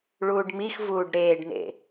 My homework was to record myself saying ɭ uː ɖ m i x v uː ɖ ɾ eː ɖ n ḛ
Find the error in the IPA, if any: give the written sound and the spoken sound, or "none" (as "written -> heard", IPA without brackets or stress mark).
none